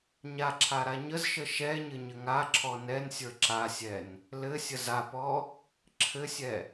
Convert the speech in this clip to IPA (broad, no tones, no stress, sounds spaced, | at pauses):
ɲ a ǁʰ a ɾ a ɲ ə z ʃ ə ʃ ɛ ɲ ɘ ɲ ɘ ŋ a ǁʰ ɔ n ɛ n sʲ ə˞ ǁ a sʲ ɛ n | l ɘ sʲ ə z a p ɔ | ǁʰ ɘ sʲ ɛ